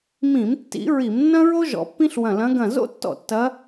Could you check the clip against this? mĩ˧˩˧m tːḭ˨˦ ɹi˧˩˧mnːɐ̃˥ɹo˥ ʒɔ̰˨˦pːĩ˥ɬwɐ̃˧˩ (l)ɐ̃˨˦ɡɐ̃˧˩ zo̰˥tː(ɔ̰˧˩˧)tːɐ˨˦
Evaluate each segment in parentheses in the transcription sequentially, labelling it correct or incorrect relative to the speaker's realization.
correct, incorrect: ɔ̰˧˩

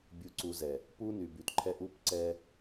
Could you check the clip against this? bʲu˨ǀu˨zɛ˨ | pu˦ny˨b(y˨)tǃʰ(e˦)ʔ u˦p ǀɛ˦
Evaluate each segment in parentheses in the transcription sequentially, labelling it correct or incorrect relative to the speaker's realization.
correct, incorrect: ɛ˦

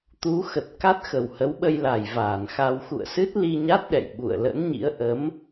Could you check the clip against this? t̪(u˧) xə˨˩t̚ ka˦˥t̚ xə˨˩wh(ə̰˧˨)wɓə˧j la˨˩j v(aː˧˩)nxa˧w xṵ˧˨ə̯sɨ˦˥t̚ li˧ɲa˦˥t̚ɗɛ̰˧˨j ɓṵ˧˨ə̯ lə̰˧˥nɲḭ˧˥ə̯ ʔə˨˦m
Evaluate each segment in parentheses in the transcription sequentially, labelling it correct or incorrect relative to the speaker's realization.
incorrect: u˨˦, incorrect: ə˨˦, correct

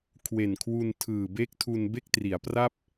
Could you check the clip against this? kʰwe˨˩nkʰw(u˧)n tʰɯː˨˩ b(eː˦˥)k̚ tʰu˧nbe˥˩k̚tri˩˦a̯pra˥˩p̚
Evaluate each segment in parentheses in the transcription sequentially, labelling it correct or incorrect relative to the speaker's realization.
correct, incorrect: e˦˥

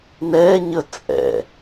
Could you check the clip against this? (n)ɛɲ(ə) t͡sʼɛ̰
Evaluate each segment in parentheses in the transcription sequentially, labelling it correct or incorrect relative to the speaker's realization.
correct, correct

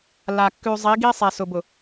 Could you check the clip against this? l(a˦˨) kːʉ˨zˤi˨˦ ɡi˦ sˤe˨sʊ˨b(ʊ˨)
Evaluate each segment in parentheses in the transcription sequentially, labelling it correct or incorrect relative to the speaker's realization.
incorrect: a˨, correct

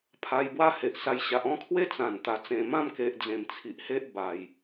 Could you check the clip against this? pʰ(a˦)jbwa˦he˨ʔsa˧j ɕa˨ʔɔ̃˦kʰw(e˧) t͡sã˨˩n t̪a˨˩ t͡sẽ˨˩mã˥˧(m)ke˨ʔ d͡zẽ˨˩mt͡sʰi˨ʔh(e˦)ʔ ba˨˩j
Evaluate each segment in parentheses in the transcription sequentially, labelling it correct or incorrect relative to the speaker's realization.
incorrect: a˧, incorrect: e˦, correct, correct

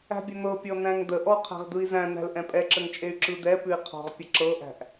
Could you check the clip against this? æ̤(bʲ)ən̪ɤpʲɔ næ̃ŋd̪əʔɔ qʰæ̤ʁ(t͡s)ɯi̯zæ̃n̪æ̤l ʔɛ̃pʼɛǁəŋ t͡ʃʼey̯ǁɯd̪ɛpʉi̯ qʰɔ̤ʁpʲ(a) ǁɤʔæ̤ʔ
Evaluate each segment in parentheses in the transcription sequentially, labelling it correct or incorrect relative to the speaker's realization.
correct, incorrect: d̪, incorrect: ə

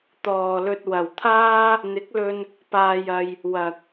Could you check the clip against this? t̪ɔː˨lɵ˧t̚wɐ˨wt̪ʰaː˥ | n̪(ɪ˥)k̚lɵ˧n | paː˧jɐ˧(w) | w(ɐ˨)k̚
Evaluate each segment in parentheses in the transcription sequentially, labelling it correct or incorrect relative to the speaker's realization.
incorrect: ɪ˨˥, incorrect: j, correct

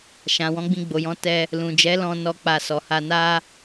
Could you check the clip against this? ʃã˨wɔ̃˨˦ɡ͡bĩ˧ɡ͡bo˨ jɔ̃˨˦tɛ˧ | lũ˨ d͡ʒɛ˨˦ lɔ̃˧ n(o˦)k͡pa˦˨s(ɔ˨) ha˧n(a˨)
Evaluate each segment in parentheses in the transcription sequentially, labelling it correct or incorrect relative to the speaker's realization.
incorrect: ɔ˦, incorrect: ɔ˧, incorrect: a˦

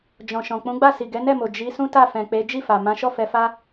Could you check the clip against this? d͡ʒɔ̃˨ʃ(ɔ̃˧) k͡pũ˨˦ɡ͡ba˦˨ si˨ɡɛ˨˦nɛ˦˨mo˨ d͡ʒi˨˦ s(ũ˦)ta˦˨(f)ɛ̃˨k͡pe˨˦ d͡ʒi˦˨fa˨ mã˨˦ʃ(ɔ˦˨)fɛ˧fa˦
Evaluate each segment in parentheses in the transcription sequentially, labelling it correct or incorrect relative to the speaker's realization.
incorrect: ɔ̃˨, correct, correct, correct

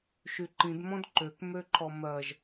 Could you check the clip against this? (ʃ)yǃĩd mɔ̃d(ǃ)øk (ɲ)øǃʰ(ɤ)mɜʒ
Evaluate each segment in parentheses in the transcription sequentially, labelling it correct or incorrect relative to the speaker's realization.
correct, correct, incorrect: m, incorrect: ɔ

